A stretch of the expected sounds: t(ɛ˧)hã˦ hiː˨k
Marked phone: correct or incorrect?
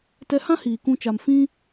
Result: correct